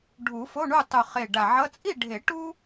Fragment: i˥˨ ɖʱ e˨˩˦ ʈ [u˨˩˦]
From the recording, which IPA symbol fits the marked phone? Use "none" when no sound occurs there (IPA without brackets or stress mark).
u˥